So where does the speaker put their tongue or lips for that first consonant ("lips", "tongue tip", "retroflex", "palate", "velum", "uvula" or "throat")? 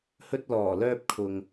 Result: throat